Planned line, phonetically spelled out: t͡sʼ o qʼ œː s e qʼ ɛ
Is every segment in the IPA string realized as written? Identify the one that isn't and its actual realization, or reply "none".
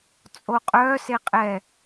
none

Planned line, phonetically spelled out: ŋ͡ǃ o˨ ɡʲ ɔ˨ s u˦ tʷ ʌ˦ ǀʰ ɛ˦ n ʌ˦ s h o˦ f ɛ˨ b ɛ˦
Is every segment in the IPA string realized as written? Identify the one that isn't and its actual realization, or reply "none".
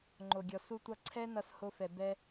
none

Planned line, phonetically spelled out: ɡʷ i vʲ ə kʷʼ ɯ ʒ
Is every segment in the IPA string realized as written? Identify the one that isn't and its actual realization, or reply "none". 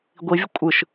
ʒ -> ʃ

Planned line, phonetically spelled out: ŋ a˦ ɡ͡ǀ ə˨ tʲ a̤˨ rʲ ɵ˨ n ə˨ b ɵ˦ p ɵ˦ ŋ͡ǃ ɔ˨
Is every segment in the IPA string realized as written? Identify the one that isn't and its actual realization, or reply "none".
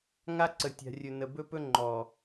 ɡ͡ǀ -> ǀ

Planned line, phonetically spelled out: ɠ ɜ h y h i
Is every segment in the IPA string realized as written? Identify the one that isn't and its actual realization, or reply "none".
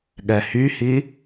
ɜ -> ɛ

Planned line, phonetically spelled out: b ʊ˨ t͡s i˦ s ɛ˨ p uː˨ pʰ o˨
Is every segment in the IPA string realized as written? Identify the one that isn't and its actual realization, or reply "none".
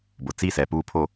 none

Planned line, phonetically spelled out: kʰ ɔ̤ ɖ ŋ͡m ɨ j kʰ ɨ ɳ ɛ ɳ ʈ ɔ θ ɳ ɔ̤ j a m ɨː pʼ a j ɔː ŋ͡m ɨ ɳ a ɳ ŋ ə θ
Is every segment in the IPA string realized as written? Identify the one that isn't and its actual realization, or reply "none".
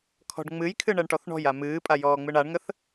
none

